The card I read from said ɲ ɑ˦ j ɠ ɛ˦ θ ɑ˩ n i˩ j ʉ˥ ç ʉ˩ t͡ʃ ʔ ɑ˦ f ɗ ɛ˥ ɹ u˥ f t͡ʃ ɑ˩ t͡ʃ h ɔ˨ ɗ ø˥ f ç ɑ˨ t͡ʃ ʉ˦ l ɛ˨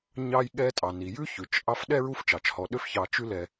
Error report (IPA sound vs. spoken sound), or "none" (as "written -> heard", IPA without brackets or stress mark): θ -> tʼ